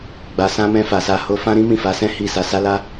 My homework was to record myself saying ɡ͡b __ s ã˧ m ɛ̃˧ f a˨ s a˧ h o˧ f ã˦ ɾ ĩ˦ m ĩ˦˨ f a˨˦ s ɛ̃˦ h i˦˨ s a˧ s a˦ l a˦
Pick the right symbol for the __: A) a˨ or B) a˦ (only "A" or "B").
A